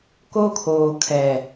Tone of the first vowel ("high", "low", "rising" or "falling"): high